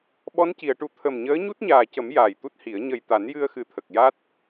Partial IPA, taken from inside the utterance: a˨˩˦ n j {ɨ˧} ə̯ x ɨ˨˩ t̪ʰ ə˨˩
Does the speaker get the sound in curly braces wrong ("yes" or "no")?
no